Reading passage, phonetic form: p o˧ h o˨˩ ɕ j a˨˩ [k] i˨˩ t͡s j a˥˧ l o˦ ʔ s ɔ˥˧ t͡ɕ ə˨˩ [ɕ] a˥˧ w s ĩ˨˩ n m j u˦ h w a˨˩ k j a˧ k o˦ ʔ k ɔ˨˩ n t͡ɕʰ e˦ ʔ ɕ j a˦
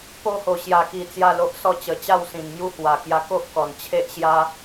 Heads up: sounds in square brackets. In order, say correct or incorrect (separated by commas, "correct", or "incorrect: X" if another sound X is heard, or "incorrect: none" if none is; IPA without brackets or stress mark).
correct, incorrect: t͡ɕ